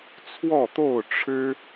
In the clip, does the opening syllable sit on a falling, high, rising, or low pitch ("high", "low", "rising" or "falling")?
falling